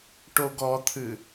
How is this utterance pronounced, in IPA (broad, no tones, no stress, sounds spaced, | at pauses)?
ʈ o ɡ ɔ t̪ʰ ɨ